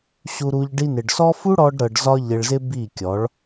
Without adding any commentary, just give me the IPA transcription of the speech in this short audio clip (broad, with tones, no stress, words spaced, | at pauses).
ɕu˧ɾu˧ʎ ɖi˧nɪ˨ɖsɔ˦ fu˦ɽɔ˧ɖ ɾɤ˧ɖ zɒ˦ʎɪ˧ɭzɪ˦ bi˦˨kʲɔ˨˦ɭ